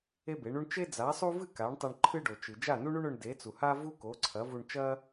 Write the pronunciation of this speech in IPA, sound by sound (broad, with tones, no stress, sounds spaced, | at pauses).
e˥ b e˩˥ ɳ u˥ ɳ t͡ʃ e˥ d͡z a˩˥ sˤ u˥ v ɨ˥˩ k a˩˥ ɳ tˤ e˧ ɳ ǃʰ ɨ˥ ɖ o˩ t͡ʃ ɨ˩ d͡ʒ a˥˩ n u˥ ɳ u˥ ɳ ɵ˧ ɳ d e˩˥ t͡s u˩ h a˥ v u˥ k o˩˥ ǀʰ ɐ˩˥ v u˧ ɳ t͡ʃ ɐ˥